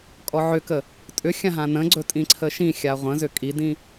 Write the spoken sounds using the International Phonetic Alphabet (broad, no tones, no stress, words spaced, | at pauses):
kʼɔʕʏkə | tʼʏ xʲãɦãnə̃ɡ͡ǀɵ tʼĩǀʰəʃĩxʲa ʁʷə̃zʏ kʼidĩ